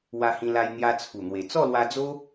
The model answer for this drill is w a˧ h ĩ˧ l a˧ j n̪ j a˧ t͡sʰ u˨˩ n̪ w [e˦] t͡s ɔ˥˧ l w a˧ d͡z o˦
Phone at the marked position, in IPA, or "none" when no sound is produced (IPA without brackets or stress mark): e˨˩